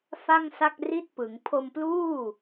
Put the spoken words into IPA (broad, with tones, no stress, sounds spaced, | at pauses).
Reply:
f a˥˩ ŋ s a˥˩ k̚ r i˥˩ t̚ p ɯ˩˦ ŋ pʰ o˧ m p l uː˥˩